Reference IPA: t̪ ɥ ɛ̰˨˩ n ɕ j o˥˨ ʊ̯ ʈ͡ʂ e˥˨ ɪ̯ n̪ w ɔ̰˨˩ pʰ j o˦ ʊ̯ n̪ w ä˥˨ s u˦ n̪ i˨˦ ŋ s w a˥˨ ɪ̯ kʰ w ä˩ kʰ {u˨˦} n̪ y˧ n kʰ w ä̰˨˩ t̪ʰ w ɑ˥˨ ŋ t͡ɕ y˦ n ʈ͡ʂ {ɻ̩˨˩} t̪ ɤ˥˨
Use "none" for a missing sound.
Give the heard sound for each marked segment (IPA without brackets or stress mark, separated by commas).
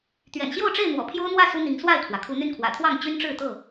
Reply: u˨˦, ɻ̩˥˨